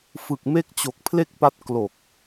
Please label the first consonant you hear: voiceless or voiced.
voiceless